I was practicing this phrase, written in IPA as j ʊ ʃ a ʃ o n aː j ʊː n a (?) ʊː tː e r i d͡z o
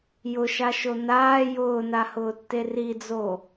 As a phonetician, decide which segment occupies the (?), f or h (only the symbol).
h